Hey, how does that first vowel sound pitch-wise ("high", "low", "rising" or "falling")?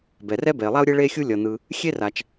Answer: low